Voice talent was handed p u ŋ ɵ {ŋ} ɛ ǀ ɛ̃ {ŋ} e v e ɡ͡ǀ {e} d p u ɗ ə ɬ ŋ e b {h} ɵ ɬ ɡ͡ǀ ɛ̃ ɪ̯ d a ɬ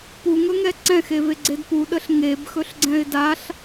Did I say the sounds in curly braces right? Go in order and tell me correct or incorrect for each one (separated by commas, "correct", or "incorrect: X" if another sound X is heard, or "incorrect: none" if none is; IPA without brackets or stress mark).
correct, incorrect: x, correct, incorrect: x